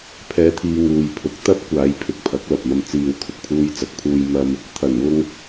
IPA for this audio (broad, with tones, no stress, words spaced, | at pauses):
pʰɛː˧t̪ʰiː˧ ŋuː˨jpʰʊ˨˥k̚ t̪ɐ˥p̚kʷaː˨˧j pʰɪ˧k̚pʰɐ˨˥k̚ lɐ˨p̚mɐ˧m t͡siː˧w kʰʊ˨k̚pʰuː˧jt͡sɐ˨˥k̚pʰuː˧j mɐ˥m | t̪ʰɐ˨˩nwʊ˧ŋ